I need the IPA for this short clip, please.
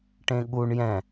ʈẽɠuɳ jɛ̃

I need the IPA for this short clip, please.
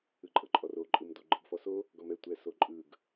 ɯǃʼɤǃʼɔro ǃʼɯmdo ɡ͡ǃɯɡfɔso | ɡɔmɛ tʷɛsoǃʼɯɡ

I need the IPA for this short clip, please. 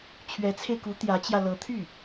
t͡ɕʰɥɛ˧˥t͡sʰe˧ɪ̯ku˧˥ t̪jä˧˥t͡ɕjä˧ lɤ˧˥t̪ʰy˥˩

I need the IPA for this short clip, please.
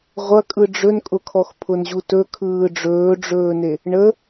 ʁʷɐ kʼɯɖ͡ʐɵnkʼʊkʰɔx pʰʊnʑutɵ kʰɯːɖ͡ʐɵːɖ͡ʐɵːne | ɳə

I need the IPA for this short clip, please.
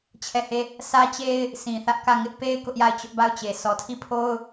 t͡ɕʰɛ˦˨he˦˨ | sä˦t͡ɕe˦ɪ̯ | sʰĩ˨ θä˦ʔ kä˦˨ ŋɪ˦ʔpe˦ɪ̯ kʊ˦ʔja˦˨ɪ̯ t͡ɕʊ˦ʔba˦˨ʊ̯t͡ɕe˨ sɔ˨tʰi˦˨pʰo˦ʊ̯

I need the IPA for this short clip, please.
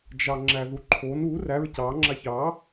d͡ʒɑŋ͡ǁæðuǃʰon u ræɹ cɑ ŋ͡ǁaçɑ

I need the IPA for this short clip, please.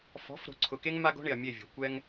fɔ̤˨˦fɾo̤˨ǀʰʊ˨ke˦ŋ ma˦ɡo̤˦ɳɪ˨ɐ̯ mʲe˦˨vʲo̤˨ kʷɛ˦ŋ

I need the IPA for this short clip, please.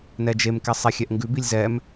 nɛd͡ʒemkɛ sˤexʲɛʔŋɡʉbilʲ zɛm

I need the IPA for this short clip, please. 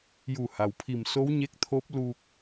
ju˧˩ha˩wpʰi˧˩mso˧˥w ɲe˧˥k̚t̪ʰo˧˥p̚ lu˧k̚

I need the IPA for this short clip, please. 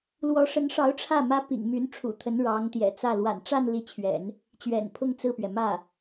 lwɔ˧˥ʂə˧˥nʂɑ˧˥ʊ̯ ʈ͡ʂʰä˥˩ mä˥pḭ˨˩ŋmy˧˥n ʈ͡ʂʰṵ˨˩t̪ʰə˧˥n ɻɑ˧˥ŋt̪jɛ̰˨˩t͡sä˥˩ lwa̰˨˩nʈ͡ʂa˥˧n li˥˩t͡ɕʰɥɛ̰˨˩˦n | t͡ɕɥɛ̰˨˩npʰʊ˥˧ŋ t͡sɹ̩˥˩pɥɛ˩ mä˥˩

